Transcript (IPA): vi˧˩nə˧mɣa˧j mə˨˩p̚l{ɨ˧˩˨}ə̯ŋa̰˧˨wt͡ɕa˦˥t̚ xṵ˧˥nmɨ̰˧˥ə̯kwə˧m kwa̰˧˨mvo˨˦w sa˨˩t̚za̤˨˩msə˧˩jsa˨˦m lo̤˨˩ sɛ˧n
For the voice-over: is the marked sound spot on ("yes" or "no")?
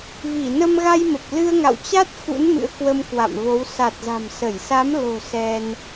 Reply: no